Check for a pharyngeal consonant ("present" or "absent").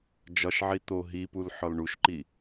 present